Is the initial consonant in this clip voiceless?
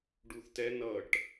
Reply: no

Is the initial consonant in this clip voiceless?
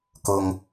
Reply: yes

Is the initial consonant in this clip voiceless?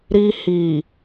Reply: no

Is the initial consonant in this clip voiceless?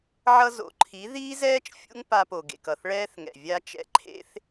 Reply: no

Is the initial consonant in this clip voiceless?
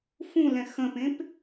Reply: yes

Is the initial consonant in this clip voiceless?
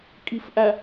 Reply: yes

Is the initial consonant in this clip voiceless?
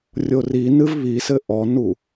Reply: no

